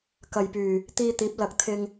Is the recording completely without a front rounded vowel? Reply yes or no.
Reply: no